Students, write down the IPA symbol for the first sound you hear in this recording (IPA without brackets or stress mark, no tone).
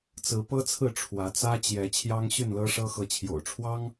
t͡s